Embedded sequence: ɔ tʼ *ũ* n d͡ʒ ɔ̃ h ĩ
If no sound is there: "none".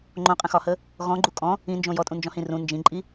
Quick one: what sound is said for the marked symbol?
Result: ũ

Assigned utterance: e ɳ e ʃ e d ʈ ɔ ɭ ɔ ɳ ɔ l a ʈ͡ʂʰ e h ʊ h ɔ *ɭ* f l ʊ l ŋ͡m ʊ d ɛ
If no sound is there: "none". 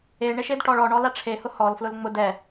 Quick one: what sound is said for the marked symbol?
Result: l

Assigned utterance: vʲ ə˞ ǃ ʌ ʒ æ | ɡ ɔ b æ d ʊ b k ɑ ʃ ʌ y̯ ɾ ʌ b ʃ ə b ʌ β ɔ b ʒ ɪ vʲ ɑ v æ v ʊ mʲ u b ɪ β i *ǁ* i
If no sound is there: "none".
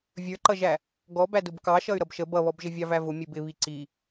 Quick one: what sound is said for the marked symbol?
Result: ǀ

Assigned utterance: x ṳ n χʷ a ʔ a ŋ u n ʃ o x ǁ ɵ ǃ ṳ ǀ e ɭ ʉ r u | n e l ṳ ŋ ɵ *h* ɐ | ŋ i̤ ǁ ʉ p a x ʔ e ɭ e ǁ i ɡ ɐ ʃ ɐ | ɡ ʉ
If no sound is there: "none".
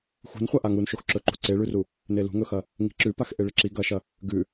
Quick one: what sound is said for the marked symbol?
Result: x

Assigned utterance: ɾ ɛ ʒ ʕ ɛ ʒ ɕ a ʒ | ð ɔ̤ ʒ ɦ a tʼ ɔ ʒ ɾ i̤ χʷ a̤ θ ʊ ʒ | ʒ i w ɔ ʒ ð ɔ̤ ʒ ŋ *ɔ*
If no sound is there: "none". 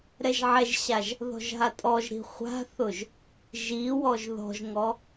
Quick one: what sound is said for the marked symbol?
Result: ɔ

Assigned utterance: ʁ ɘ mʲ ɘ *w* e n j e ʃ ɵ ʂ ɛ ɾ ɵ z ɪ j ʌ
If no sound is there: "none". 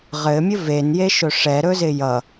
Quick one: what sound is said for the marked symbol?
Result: v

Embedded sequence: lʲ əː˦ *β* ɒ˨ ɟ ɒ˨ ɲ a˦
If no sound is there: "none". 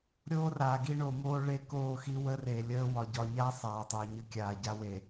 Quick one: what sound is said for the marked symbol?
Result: w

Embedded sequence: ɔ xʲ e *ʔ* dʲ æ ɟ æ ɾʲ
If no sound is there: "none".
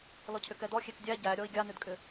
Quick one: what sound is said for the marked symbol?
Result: k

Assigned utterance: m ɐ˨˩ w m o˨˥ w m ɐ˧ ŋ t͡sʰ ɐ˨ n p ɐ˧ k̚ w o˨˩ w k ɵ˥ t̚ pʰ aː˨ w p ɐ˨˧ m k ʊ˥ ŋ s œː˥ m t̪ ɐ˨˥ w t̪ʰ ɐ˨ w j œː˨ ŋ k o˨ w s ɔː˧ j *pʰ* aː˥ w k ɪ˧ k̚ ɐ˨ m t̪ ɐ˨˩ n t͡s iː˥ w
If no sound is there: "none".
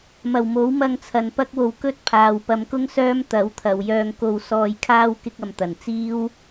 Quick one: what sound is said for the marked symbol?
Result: kʰ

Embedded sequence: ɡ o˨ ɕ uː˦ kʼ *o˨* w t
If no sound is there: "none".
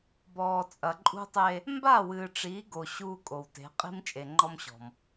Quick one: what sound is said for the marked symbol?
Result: o˨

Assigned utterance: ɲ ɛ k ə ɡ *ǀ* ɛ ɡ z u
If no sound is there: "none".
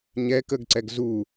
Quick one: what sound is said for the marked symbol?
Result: ǀ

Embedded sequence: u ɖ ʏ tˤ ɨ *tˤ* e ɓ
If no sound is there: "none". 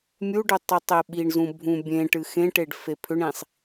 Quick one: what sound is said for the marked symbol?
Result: tˤ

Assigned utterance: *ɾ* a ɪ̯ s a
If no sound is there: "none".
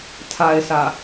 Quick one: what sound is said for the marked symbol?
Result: tʰ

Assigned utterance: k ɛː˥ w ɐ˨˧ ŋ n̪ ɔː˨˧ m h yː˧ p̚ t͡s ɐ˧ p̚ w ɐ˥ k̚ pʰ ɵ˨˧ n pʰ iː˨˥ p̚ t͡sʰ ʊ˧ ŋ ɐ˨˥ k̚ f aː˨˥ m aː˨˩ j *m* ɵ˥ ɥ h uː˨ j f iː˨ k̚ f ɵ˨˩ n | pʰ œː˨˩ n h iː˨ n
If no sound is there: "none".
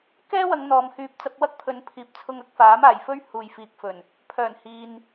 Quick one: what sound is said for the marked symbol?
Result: f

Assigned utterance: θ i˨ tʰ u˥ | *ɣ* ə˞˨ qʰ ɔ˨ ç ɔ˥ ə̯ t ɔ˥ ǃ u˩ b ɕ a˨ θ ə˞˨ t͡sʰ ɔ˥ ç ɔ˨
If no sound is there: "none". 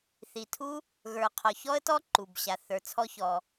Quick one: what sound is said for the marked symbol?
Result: ɣ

